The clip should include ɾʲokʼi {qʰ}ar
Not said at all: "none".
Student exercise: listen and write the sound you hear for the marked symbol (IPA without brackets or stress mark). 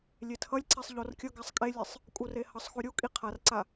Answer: qʰ